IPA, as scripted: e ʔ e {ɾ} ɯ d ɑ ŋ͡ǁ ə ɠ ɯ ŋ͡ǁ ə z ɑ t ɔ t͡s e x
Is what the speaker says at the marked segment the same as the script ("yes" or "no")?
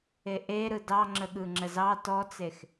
yes